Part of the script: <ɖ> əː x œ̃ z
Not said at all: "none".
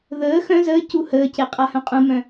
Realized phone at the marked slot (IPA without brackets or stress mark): ð